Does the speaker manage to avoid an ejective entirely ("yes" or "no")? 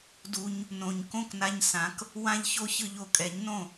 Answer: no